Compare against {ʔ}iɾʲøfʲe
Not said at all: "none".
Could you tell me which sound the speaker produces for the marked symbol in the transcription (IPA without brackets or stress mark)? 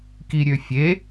k